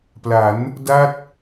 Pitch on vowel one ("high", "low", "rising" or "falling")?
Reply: rising